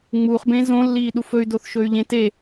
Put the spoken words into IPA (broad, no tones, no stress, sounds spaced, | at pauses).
ŋ͡m uː χ b ẽ z õ lː iː ɗ u f ɵ y̯ d o θ ʃ ɵ y̯ ʎ ẽ t e